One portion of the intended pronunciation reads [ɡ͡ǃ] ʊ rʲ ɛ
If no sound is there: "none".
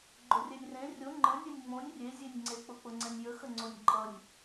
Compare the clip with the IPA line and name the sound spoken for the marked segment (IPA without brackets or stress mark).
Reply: ɡ͡ǃ